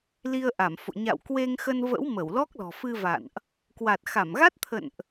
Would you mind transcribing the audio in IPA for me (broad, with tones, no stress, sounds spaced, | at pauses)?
l i˧ ə̯ ʔ a˧˩ m f o̰˧˨ ɲ a̰˧˨ w k w e˧ ŋ x ə˧ n v ə̰˧˥ w m ə˧˩ w l ɔ˦˥ k̚ l ɔ̤˨˩ f ɨ˧ v a̰˧˨ n ʔ | k w a˨˩ t̚ x a˧˩ m ɣ a˦˥ t̚ t̪ʰ ə̰˧˨ n ʔ